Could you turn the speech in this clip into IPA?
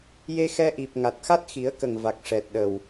j e˧ x ɛ˧ ʔ i˨˩ p̚ ŋ a˨˩ t̚ x a˦˥ t̚ x i˨˩˦ ə̯ k ə˨˩ ŋ v a˨˩ k̚ ʂ ɛ˨˩ t̚ ɗ ə˨˩ w

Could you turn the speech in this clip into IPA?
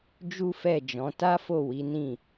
d͡ʒ u˦ f ɛ˦˨ d͡ʒ ɔ̃˨˦ t a˦ f o˦˨ w i˨˦ n ĩ˦˨

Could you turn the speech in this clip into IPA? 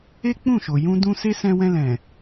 e˦ k͡p ũ˦˨ ʃ o˨ j ũ˧ d ũ˧ s e˦ s ɛ̃˧ w ɛ̃˧ l ɛ̃˨

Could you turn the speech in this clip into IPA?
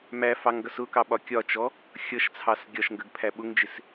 m æ f ɑ ŋ ɡ ʌ s ʊ k ɑ ɓ ɒ kʲ ɒ t͡ʃ ɔ | xʲ ʌ ʃ t͡sʰ ɑ s ɡʲ ɒ ʃ ŋ ɡ ə ɡ pʰ æ ɓ ʊ ŋ d͡ʒ ɪ s

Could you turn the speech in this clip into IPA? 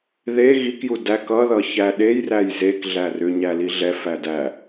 ð e ɣ i k j u d æ k ʌ ð ʌ ç æ ɗ e j r æ j z e k ɮ æ r ʏ ɲ æ l i ɮ ɛ f æ d æ

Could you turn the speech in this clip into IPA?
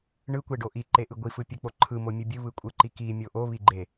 ɳ ɯ kʷ e ɖ o ʔ i ǃ e ʔ ɯ ɡʷ i f ɯ pʲ ɯ k͡p o ǃʰ ɯ m o mʲ ɯ bʲ ɯ β ɯ kʷʼ ɯ ǃ i k i mʲ o ʔ o β i ɡ͡ǃ e

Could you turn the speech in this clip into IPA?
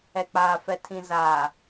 ɛ˨ k͡p aː˨ f ɛ˨ tʰ ĩ˨ z aː˨

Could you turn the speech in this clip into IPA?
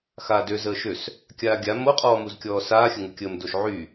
x aː d ø z əː ʃ ø s | kʲ aː ɡʲ a m o qʼ ɔː m u z kʲ ɔː s aː xʲ ə ŋ u kʲ əː m d o ʃ ʕ y

